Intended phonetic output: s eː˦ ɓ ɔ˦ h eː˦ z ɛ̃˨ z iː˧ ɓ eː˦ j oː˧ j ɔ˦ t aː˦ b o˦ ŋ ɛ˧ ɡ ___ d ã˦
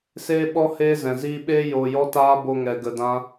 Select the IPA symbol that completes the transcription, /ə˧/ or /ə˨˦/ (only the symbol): ə˧